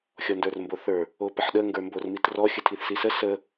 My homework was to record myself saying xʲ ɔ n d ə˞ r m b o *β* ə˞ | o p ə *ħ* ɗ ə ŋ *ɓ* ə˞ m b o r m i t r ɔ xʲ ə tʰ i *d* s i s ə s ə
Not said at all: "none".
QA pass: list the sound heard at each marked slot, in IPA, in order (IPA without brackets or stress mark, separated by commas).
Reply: θ, ħ, ɡ, θ